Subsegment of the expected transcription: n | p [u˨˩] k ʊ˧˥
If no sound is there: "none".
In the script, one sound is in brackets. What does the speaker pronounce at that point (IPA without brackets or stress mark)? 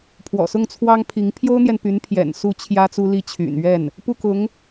u˥˩